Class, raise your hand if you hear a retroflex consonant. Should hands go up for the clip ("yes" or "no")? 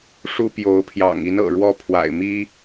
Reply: yes